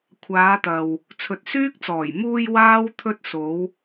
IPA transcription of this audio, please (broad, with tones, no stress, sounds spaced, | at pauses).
kʷʰ aː˨˧ t̪ ɐ˨ w | t͡sʰ ɵ˨ t̚ s yː˥ k̚ t͡s ɔː˨˩ j m uː˧ j w aː˥ w t̪ʰ ɵ˧ t̚ s o˨˧ w